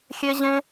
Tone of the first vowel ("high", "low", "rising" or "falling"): high